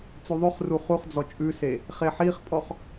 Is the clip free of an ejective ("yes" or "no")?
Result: no